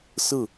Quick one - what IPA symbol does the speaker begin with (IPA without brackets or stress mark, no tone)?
s